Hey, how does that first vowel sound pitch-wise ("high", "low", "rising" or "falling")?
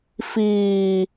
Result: low